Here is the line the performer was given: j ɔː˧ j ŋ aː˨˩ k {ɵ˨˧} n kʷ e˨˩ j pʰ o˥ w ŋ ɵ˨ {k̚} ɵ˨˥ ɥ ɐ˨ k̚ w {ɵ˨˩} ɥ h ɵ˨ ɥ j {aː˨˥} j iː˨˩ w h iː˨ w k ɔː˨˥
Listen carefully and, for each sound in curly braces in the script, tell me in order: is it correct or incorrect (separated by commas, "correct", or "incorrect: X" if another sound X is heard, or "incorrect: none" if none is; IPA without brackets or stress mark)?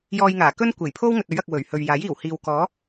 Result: incorrect: ɵ˥, incorrect: t̚, correct, correct